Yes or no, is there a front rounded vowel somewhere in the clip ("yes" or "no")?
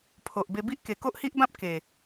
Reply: no